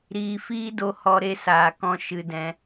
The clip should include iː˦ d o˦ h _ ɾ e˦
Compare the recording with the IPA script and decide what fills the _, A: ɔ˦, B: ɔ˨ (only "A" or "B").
A